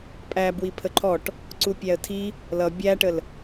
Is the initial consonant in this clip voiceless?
yes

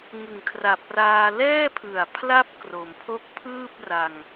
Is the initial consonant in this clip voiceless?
no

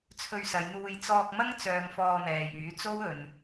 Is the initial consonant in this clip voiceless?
yes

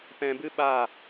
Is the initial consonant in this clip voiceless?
yes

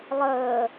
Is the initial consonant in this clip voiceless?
no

